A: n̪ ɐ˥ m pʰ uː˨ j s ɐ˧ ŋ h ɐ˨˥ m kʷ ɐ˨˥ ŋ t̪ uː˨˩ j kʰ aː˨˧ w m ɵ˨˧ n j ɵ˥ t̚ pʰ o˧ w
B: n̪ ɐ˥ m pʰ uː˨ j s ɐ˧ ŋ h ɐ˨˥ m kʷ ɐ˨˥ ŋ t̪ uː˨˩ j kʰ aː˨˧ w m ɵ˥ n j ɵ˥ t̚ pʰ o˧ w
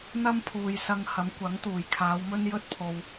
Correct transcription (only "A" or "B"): B